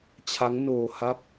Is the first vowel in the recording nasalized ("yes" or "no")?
no